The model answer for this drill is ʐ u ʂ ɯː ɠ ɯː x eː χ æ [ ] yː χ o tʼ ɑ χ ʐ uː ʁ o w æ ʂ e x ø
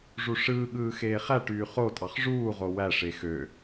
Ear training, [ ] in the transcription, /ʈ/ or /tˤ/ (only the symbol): ʈ